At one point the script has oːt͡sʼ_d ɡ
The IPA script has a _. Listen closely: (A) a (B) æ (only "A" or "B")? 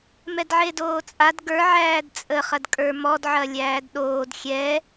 A